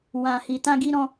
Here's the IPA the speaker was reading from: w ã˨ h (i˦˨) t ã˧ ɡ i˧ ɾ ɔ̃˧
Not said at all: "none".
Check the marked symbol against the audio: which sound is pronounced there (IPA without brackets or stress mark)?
i˨